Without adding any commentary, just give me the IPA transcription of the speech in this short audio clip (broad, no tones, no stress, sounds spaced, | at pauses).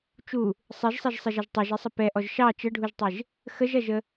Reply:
t͡ʃ u | sˤ e ʒ sˤ ɛ ʒ sˤ e ʒ ɐ ʒ tˤ ɛ ʒ e sˤ ə p ɛ ʔ ɔ ʒ ʃ ɑ t͡ʃ ə ɖʱ u ʒ tˤ e ʒ | x ə ʒ ɐ ʒ ə